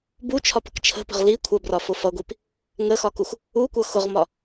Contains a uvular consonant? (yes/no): yes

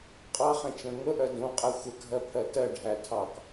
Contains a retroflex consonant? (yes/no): yes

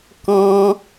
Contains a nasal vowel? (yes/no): yes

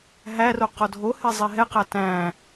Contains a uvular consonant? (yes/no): yes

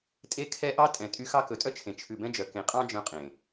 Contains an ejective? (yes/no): yes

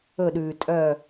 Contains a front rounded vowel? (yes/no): yes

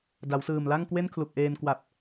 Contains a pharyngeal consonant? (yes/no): no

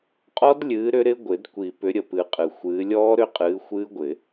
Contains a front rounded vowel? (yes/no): yes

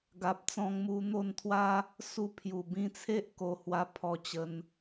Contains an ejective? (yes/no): no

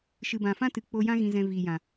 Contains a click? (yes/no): no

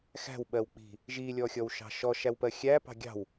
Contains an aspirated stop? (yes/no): no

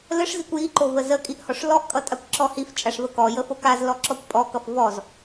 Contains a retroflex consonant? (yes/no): yes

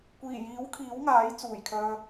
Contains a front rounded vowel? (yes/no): yes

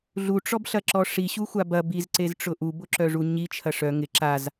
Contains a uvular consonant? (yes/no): no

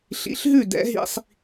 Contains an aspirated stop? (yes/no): no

